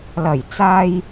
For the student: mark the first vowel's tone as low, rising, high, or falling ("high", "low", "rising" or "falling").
low